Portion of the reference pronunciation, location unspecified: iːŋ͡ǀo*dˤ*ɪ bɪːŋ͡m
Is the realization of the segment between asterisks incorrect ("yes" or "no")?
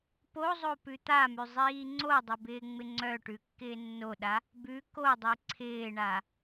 no